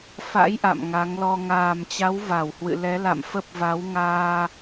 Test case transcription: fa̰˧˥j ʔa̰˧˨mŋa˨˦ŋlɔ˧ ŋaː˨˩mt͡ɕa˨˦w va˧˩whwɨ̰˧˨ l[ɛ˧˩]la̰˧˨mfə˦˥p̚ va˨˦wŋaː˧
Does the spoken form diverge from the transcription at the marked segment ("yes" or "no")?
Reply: yes